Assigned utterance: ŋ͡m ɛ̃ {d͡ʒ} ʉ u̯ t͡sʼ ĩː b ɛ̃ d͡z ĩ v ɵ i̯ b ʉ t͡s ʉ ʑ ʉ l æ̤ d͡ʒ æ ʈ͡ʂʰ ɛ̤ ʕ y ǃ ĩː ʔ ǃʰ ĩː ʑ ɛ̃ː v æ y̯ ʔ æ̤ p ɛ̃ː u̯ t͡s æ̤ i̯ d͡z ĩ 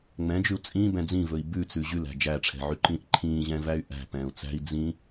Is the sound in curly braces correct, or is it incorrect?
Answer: correct